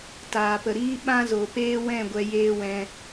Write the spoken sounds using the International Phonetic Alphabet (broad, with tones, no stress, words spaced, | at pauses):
taː˨pə˨ɾiː˦ ɓã˦zo˨peː˦wɛ̃˦˨ ɡʷɛ˧jeː˦wɛ̃˧